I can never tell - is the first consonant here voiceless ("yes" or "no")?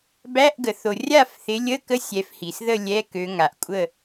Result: no